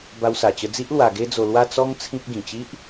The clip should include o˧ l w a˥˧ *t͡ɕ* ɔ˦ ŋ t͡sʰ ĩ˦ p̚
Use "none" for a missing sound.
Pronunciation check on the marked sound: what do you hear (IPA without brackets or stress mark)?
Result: t͡s